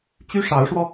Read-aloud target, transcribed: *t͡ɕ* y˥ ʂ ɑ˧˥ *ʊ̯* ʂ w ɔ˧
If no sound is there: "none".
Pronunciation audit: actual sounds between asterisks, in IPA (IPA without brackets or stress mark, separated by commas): t͡ɕ, ʊ̯